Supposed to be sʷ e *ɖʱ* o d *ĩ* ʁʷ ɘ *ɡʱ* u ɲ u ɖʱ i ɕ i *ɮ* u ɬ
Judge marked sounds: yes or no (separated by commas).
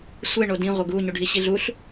no, yes, no, yes